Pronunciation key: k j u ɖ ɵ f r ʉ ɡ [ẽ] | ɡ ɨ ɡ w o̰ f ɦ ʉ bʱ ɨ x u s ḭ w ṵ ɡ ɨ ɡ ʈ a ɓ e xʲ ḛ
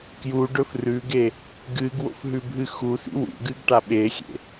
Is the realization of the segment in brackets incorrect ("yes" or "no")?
yes